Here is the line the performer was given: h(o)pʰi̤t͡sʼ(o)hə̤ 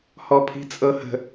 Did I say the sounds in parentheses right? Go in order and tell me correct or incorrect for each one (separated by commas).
incorrect, incorrect